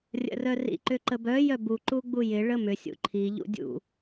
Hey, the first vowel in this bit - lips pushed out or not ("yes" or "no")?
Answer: no